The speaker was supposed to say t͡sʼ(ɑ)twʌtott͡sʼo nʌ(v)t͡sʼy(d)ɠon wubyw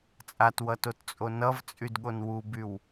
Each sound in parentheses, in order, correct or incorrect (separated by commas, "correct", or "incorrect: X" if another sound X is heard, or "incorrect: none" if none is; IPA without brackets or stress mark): incorrect: a, correct, correct